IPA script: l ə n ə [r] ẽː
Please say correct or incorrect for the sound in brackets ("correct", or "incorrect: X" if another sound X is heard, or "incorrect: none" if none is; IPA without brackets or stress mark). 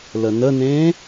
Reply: incorrect: n